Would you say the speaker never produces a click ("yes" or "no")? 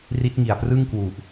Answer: yes